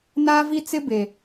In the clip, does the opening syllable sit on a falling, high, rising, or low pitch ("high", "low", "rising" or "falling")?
high